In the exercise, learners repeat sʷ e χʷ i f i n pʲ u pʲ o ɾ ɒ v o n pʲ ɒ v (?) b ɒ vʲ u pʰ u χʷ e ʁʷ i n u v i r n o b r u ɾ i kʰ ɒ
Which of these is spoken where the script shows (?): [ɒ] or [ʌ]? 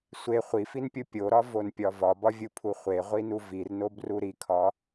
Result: ɒ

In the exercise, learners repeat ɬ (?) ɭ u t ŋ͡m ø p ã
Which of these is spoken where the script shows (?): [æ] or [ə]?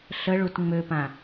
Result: ə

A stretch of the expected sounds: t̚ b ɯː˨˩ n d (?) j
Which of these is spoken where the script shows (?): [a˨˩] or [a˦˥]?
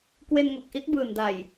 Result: a˨˩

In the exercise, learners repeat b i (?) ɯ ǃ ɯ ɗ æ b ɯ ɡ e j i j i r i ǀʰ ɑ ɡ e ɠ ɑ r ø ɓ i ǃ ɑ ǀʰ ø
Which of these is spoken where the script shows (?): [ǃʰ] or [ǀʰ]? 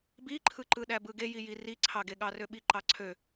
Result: ǃʰ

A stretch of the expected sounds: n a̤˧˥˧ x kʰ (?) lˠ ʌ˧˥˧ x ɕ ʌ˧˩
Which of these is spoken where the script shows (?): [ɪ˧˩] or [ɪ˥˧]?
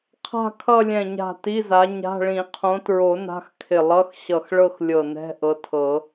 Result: ɪ˧˩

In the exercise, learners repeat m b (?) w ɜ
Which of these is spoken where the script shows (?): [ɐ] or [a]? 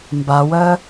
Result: a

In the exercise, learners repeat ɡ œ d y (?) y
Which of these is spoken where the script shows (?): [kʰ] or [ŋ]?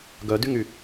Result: ŋ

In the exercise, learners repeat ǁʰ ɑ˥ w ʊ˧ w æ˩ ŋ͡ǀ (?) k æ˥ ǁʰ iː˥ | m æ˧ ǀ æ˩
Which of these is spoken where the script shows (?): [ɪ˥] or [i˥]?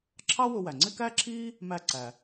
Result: ɪ˥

